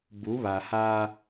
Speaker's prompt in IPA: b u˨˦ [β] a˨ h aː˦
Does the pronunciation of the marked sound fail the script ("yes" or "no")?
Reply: no